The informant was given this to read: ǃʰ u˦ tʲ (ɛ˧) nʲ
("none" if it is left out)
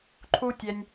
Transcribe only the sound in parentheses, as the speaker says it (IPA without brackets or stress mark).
ɛ˧